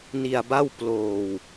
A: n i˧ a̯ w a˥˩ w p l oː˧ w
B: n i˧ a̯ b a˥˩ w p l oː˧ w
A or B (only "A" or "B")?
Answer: B